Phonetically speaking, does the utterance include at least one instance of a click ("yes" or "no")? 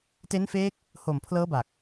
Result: no